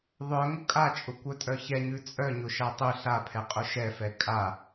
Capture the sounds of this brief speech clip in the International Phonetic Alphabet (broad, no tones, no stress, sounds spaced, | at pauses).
ðˤ œ ŋ ʊ kʼ a t͡ʃʼ ʊ kʷ œ tʼ œ ç ɛ ɲ ʉ t͡sʼ œ ɲ ʊ ʃ a tˤ ʉ ɬ a pʰ ɛ qʼ ʊ ʃ ɛ f ɛ kʼ a